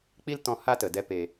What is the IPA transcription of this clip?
k͡p i˦ l t ɔ̃˧ h a˦ t ə˨ d ɛ˧ p e˨

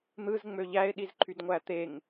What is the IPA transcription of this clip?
n̪ ɯ z ŋ͡m ø ʎ æ ɪ̯ ɗ i z ǃʰ y d ŋʷ æ t̪ e ŋ

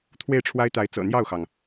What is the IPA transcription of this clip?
t̪ʰ w e˥˩ ɪ̯ ʈ͡ʂʰ w a˥ ɪ̯ t̪ a˧˥ ɪ̯ t͡s ɤ̰˨˩ n̪ j ɑ˥˩ ʊ̯ x ɑ˩ ŋ

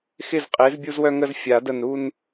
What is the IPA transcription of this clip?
x ɪ˥˨ z qʼ e˨˥ z bʲ u˦ z w œ˦ ŋ ə˥˨ z fʲ a˨˩˦ d ə˧˩ n ɾ u˦ n

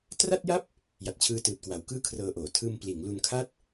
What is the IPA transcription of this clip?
t r a˥˩ t̚ j a˥˩ p̚ | j a˨˩ t̚ t͡ɕʰ ɯː˧ t ɯː˨˩ t̚ k w a˩˦ w k ɯː˥˩ kʰ r ɤː˧ ʔ oː˩˦ tʰ ɯː˧ m p l iː˩˦ ŋ l u˧ n kʰ a˥˩ t̚

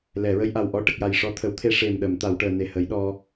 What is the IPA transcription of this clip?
l ɛ˨˩˨ ɹ ə˧ j ʔ a˨˩ w ʔ ɔ˧˥ ʈ ə˨˩ k̚ j a˨˩ j ʂ ɔ˧ t̪ʰ ə˨˩˦ w t̪ʰ e˧ ʂ e˨˩ m ɗ ə˨˩˨ m t̪ a˨˩˨ w ʈ əː˨˩ n e˨˩ h ə˨˩˦ j ɗ ɔ˧

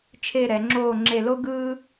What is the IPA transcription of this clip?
t͡ʃʰ e˥˧ ɾ ɛ˩˧ ŋ͡ǁ oː˥˧ ŋ͡ǁ e˥˧ l o˥ ɡ ɯː˥

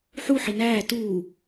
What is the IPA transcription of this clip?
ħ u ħ i n æː t uː

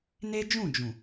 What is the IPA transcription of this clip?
n e˦ d͡ʒ ũ˦˨ d͡ʒ ũ˨

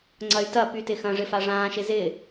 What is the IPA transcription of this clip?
ŋ͡ǀ ɐ y̯ t ɐ p y t ɪ x ɐ̃ ʐ ɪ f a ʐ ãː ʃ ɪ z ɪ

